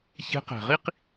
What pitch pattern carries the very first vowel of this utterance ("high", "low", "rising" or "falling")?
rising